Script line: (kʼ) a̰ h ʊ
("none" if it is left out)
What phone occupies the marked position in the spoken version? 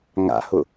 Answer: ŋ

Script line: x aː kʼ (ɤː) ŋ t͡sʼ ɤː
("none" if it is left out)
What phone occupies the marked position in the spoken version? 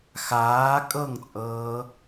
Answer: ɤ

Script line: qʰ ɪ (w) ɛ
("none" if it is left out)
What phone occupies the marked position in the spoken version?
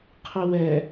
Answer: w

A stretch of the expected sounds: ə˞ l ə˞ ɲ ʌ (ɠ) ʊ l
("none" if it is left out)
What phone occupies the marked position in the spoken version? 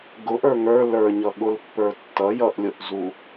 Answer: ɠ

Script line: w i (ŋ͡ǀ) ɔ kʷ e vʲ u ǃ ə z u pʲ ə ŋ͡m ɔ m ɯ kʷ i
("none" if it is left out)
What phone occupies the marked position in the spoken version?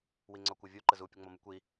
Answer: ŋ͡ǀ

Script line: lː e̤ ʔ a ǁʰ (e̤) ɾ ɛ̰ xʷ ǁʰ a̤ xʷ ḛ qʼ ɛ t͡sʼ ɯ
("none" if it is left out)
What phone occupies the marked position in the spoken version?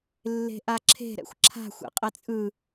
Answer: e̤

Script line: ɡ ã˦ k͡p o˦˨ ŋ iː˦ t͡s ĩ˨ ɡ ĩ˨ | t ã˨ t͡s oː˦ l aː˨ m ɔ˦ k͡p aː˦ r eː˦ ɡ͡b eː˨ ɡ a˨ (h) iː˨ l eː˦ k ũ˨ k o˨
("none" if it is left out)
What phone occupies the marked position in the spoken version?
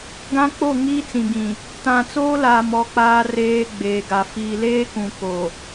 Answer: f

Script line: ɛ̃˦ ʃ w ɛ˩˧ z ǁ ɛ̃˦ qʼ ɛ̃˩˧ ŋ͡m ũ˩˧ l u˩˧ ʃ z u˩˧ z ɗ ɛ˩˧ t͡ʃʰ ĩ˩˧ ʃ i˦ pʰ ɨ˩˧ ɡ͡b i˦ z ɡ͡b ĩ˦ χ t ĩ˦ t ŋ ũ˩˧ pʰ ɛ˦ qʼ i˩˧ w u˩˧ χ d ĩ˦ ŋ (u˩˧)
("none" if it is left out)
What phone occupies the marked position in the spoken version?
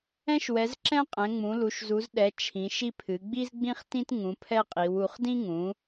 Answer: ũ˩˧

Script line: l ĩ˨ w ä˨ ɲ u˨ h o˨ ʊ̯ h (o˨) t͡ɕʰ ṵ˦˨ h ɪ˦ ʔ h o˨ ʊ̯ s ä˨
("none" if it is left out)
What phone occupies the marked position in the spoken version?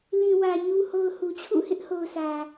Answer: u˨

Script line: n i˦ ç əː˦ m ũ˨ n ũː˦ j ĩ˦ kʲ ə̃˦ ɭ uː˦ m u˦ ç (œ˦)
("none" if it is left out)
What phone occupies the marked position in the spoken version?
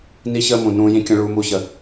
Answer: ə˦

